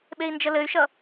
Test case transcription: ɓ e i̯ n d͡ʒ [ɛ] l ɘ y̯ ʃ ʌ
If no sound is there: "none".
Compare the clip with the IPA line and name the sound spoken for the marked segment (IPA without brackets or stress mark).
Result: ə